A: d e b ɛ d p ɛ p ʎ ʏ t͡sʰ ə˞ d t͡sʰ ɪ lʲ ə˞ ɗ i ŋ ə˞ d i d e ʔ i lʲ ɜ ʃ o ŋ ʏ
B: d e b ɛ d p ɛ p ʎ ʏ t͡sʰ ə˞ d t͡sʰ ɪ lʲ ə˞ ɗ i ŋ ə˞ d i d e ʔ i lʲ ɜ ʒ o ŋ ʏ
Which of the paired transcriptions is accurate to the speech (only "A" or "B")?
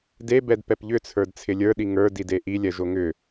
B